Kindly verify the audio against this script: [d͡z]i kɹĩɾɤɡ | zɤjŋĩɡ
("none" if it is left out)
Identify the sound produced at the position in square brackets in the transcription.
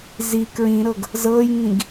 z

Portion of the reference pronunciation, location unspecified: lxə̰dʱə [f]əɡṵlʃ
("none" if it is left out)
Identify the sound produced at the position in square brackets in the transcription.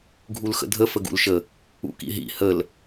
f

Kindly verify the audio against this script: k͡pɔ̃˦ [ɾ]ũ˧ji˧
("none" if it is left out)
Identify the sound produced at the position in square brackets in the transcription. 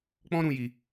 ɾ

